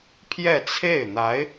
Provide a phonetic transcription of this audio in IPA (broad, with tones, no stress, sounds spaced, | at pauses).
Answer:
pʰ j ɛ˥˧ t͡sʰ e˥˩ ɪ̯ n̪ a˧˥ ɪ̯